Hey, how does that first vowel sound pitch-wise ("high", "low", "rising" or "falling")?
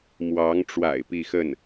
rising